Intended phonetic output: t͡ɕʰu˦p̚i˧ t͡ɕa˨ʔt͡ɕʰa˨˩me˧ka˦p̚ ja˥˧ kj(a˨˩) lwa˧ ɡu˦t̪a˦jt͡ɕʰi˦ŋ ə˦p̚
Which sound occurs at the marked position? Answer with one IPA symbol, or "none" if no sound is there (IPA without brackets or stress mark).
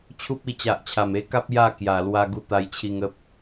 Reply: a˨˩